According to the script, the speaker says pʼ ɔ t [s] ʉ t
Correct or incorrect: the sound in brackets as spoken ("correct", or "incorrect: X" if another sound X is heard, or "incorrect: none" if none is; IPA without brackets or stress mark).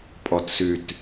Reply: correct